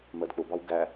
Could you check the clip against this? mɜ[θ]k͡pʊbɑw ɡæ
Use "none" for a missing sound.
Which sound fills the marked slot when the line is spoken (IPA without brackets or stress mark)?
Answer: d